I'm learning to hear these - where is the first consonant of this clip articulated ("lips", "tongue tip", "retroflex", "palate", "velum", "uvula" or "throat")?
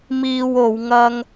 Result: lips